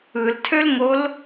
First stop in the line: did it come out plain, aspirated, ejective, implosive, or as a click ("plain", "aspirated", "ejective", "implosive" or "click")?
aspirated